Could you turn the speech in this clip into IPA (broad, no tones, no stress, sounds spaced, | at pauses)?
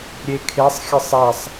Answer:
ɾʲ e kʰ e sˤ xʲ ɘ sˤ ɛ sˤ